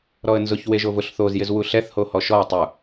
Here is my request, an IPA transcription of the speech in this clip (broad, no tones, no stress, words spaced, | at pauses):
ɾɔə̯nzʊç weʒovʊɬ θozjɪz wuɬɛθ hohɔʃɔə̯ tˤu